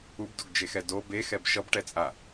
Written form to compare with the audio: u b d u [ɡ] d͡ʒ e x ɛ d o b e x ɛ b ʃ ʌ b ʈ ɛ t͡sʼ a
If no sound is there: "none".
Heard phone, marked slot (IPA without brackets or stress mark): ɡ